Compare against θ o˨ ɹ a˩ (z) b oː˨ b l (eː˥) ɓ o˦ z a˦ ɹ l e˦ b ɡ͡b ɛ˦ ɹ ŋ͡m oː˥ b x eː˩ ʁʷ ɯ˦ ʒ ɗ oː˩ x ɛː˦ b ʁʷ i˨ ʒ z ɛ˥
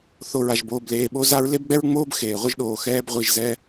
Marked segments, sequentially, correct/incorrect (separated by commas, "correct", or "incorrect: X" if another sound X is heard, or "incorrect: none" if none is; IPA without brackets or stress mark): incorrect: ʒ, incorrect: eː˨